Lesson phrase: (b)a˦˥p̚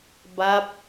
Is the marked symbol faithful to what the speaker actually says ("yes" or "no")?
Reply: yes